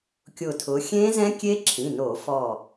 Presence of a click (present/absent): present